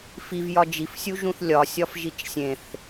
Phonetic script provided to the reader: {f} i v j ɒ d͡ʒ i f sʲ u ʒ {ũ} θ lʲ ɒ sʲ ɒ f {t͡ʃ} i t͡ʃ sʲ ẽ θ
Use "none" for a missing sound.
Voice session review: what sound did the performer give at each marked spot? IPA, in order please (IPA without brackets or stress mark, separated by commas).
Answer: f, ũ, ʒ